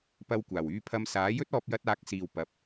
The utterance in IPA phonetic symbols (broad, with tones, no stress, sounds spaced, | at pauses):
p ɐ˧ w kʷ aː˨˩ w yː˧ pʰ ɐ˧ m s aː˨˥ j ɵ˥ t̚ ɔː˧ p̚ j ɐ˧ t̚ aː˨˥ k̚ s iː˨ w p ɐ˨˥ p̚